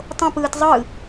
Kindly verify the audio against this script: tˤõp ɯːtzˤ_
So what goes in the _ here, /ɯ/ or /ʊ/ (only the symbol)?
ɯ